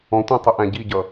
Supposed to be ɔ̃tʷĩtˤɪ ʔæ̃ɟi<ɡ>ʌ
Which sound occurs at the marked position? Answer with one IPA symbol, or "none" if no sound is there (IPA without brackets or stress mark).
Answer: ɟ